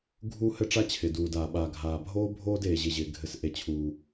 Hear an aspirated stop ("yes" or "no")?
yes